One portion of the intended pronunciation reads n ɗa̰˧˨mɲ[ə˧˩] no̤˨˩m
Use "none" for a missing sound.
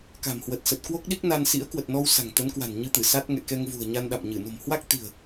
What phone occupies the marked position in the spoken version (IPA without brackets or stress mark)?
ɨ˧˩